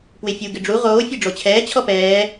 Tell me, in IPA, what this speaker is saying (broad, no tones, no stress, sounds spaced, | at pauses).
p w ɪ fʲ u ɡ ɪ ɖ͡ʐ u ʁ oː fʲ e ɖ͡ʐ o t͡ɕʰ ɛː t͡ɕʰ ɔ p ɛː